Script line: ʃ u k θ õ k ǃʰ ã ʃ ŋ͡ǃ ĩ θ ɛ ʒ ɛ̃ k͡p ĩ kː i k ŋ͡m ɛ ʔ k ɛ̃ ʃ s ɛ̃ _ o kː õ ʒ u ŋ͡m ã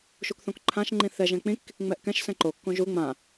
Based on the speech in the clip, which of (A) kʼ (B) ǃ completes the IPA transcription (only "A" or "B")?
B